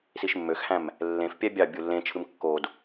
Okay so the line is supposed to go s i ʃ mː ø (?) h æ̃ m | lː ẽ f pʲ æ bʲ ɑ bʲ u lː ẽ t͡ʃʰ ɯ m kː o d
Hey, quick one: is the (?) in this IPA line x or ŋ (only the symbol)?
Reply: x